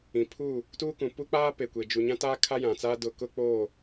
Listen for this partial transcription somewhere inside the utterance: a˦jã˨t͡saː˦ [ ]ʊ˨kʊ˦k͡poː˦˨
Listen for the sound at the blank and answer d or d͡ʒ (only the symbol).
d